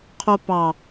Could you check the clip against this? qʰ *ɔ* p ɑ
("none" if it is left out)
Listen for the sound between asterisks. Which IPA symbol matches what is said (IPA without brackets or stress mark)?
o